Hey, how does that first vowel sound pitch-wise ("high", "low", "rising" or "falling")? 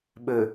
low